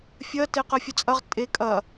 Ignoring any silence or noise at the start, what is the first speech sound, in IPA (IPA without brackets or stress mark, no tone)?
fʲ